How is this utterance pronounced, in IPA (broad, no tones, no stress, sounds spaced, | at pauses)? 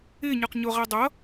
ɪː ɲ ə˞ q ɲ ʊ ʁ æ dˤ ʌ